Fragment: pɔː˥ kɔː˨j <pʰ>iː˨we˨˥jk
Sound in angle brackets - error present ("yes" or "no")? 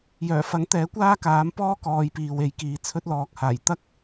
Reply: yes